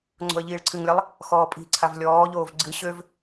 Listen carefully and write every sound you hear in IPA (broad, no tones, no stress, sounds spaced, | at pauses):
ŋ͡ǀ o̤ ə̯ ʎ iː ɭ ǀʰ ɨ ŋ lʲ a lˠ | x ɔː pʼ i̤ ǀʰ a v lʲ ɔː ʎ oː v ɡ͡ǀ ɨ ɕ ø v